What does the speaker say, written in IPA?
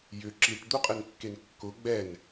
j ʏ ǁ i ʈ d̪ u qʼ ɪ n kː e n kː ʊ ɡ͡b ɛ n

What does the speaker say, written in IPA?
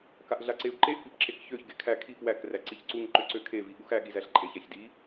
k a ʔ ɮ a ǀ e u̯ ǃ e ʔ p i p ǁ e k ç ø ç ɡ e kʰ æ kʰ i p w æ k r æ ǀ i ç ǀ u ŋ ǃ ø ǀ ø kʰ e v i ɠ u x æ ɠ i z æ ɬ ǃʼ e ç æ ç d i

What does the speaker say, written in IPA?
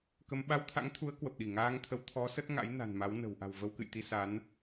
k ə˧ m ɓ a˧ w t̪ʰ a̰˧˥ ŋ t̪ʰ u˨˦ ə̯ k w ə˨˩ p̚ ɗ i˧˩ ŋ aː˧ ŋ t̪ʰ ə˨˦ w t̪ʰ ɔ˨˦ s ə˦˥ t̚ ŋ a̰˧˥ j n a̤˨˩ n m a˨˦ w n ə̤˨˩ w ʔ a̤˨˩ w v ə˧ w k ɨ̰˧˨ j t̪ i˧ s a˨˦ n

